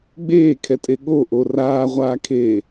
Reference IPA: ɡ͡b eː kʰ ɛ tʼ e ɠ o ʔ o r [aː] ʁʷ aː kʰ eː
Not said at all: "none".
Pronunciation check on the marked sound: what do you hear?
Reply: aː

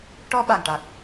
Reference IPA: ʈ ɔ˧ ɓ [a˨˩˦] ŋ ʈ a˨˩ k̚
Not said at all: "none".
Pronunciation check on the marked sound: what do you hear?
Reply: a˨˩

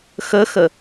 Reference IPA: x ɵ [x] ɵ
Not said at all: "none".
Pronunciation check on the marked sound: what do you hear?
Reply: x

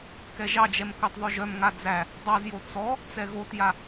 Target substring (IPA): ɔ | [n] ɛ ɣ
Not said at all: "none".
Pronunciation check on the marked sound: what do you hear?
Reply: t͡s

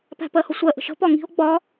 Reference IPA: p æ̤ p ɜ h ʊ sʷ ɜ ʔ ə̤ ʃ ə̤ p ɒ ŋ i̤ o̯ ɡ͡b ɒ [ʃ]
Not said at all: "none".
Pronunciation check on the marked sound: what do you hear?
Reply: none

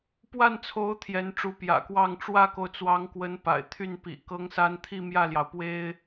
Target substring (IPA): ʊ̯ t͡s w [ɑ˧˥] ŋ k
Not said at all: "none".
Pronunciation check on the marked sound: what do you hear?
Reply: ɑ˧˥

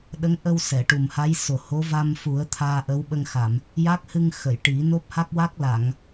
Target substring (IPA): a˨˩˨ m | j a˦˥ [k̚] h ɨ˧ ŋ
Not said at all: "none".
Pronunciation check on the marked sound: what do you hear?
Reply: k̚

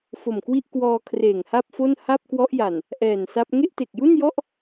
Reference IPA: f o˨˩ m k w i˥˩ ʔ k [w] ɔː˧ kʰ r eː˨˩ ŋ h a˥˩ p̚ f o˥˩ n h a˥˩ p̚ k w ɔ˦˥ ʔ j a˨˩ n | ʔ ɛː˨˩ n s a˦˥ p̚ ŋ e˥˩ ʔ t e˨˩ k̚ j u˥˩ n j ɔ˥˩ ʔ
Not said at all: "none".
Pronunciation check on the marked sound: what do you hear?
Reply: w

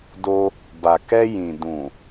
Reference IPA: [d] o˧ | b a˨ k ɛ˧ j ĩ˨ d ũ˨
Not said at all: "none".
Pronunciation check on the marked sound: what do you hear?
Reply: d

